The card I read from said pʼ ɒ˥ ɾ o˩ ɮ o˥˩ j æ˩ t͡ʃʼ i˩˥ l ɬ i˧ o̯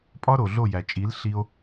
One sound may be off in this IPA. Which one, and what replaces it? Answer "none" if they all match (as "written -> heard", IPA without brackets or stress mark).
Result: none